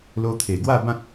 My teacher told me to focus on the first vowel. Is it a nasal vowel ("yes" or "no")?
no